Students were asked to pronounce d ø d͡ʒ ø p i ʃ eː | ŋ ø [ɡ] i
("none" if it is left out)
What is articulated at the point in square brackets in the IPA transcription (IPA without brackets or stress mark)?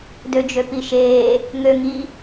ŋ